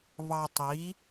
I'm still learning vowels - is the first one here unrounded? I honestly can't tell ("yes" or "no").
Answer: yes